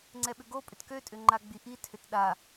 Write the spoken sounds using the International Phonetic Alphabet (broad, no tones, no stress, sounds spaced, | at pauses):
ŋ͡ǀ ɛ ɓ ʏ ɡ o pʼ ʏ t k ø tʼ ʏ ŋ͡ǃ a ɡ͡b i ʔ i tʰ ʏ t ɗ a